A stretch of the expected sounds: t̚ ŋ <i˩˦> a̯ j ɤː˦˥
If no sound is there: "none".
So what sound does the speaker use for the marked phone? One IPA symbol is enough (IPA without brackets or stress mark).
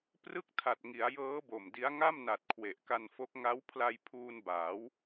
i˩˦